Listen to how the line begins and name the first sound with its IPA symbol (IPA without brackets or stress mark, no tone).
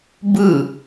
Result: b